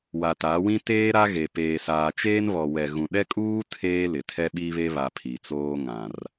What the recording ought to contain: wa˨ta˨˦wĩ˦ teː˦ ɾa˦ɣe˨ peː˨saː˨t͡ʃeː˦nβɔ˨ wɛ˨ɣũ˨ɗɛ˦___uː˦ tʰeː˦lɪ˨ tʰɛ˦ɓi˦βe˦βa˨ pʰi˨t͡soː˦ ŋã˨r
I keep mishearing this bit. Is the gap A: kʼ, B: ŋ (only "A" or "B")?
A